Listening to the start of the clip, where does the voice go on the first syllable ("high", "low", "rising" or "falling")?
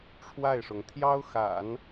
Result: falling